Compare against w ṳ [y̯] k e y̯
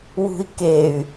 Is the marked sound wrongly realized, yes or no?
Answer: yes